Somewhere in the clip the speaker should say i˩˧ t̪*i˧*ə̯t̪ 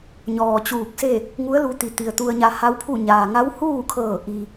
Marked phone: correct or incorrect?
incorrect